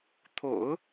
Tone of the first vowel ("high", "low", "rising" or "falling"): low